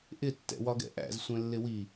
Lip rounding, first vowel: unrounded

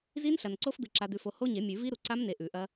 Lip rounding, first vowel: unrounded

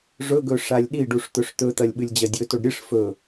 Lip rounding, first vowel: rounded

